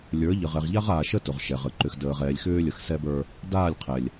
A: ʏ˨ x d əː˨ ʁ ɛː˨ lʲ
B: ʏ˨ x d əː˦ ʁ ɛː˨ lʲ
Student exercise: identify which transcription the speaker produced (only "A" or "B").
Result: A